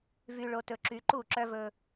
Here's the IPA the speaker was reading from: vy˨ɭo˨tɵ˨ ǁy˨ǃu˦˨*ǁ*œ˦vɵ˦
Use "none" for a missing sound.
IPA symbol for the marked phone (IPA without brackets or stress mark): ǁ